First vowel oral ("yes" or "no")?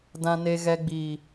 no